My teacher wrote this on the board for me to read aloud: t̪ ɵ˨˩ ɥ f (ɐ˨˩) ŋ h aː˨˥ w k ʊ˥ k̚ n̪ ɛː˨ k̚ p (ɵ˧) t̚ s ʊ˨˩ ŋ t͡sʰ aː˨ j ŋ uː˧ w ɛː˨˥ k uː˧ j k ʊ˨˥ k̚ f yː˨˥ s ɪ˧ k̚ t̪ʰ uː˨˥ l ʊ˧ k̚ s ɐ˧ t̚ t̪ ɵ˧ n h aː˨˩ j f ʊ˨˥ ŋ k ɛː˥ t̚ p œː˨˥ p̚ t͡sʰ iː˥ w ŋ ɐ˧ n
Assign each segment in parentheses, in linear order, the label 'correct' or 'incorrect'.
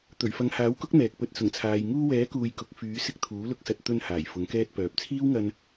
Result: incorrect: ɐ˨˧, correct

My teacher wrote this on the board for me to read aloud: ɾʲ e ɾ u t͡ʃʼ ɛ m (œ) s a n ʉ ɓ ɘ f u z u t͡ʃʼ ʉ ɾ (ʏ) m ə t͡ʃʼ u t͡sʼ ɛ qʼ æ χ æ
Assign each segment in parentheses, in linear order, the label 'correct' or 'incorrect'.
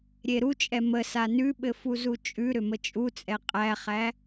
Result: incorrect: ə, correct

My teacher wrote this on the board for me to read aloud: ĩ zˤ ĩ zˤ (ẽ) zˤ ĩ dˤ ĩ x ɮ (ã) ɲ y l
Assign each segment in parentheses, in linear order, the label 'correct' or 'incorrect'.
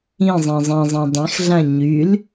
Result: incorrect: ĩ, correct

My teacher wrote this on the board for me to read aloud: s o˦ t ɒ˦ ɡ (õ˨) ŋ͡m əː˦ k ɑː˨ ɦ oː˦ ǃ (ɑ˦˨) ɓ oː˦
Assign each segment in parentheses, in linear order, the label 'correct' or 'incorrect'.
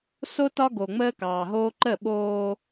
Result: incorrect: o˨, incorrect: ə˦˨

